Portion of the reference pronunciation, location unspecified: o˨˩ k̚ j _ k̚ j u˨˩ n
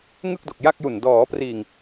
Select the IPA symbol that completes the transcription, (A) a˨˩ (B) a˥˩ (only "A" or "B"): B